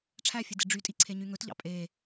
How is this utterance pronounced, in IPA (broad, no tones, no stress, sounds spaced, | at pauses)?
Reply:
ʈ͡ʂʰ æ fʲ e d e ɖ͡ʐ y tʼ i ǀʰ e ɲ y ŋ ɵ t ʎ ɑ̰ pʼ e